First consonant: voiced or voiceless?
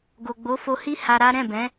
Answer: voiced